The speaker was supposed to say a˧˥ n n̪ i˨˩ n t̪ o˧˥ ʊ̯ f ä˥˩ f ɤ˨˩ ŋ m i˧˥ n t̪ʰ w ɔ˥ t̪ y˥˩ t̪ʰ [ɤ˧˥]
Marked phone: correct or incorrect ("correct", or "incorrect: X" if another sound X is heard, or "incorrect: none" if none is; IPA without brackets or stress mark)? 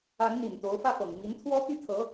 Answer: correct